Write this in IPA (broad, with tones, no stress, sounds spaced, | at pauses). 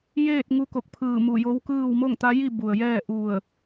j eː˥˨ t̚ ŋ u˧ k o˧˩ k̚ pʰ ɯː˧˩ m u˧˩ j o˧˥ w k ɯː˥˨ w m o˥˨ ŋ t̪ a˧˥ j i˥˨ b u˩ ə̯ j ɛː˥˨ ʔ u˧˩ ə̯